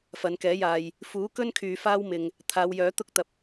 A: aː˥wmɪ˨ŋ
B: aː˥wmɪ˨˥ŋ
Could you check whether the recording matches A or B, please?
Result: A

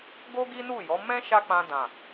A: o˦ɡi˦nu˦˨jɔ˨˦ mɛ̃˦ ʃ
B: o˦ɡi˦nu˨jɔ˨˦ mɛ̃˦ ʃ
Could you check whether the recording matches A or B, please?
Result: A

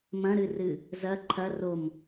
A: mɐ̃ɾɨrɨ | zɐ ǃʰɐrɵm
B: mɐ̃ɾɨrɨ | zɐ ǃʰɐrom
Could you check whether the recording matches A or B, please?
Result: B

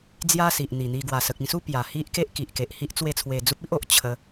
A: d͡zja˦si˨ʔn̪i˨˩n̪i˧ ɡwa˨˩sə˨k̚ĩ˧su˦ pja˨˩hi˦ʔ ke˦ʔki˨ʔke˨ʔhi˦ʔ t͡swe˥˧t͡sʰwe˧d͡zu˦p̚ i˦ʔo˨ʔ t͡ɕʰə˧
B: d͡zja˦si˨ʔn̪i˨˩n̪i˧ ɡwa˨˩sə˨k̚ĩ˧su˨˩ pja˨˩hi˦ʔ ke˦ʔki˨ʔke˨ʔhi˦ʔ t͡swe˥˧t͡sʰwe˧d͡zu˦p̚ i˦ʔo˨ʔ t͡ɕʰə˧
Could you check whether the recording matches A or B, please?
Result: A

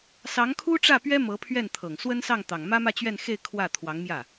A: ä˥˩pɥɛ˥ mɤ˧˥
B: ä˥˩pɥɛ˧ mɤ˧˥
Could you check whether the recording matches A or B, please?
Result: A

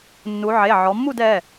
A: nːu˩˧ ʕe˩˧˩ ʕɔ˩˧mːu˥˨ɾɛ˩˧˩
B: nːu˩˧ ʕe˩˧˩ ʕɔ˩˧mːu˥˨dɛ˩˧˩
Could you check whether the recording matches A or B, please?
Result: B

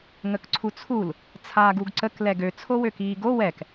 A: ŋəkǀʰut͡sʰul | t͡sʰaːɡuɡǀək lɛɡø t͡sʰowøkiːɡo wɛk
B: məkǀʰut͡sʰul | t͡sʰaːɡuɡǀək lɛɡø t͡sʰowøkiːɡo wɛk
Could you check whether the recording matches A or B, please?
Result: A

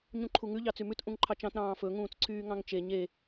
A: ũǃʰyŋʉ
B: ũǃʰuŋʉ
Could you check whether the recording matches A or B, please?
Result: B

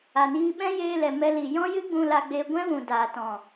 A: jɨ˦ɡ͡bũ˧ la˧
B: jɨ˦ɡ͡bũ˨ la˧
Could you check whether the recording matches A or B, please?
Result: A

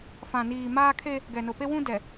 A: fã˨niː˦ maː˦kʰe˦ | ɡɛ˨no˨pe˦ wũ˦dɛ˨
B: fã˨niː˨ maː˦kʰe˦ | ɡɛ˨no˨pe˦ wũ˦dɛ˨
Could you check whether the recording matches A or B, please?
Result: B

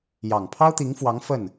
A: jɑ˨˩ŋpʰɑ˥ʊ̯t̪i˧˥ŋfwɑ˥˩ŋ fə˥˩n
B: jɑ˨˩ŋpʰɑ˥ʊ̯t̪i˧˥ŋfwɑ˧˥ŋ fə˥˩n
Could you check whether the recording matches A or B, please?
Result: B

